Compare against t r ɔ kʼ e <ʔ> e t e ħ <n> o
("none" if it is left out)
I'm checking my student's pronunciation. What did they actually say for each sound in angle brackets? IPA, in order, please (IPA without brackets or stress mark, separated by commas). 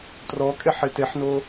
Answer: ħ, n